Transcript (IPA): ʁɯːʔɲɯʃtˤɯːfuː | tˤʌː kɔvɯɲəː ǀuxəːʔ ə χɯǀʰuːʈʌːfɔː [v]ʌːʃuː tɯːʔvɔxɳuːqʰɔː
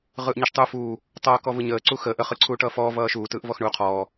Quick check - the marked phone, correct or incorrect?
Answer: correct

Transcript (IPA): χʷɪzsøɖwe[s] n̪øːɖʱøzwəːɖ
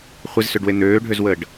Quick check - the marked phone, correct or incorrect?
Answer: incorrect: none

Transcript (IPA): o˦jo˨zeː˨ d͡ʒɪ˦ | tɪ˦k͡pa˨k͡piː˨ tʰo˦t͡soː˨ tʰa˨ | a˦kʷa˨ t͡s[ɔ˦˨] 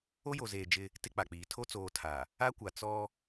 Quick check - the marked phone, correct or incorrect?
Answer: incorrect: ɔ˦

